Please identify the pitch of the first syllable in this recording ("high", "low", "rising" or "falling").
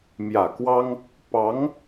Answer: low